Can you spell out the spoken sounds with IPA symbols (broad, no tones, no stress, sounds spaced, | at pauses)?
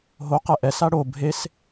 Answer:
ɦ o q ɛ ʔ ɛ s a ɽ o bʱ e s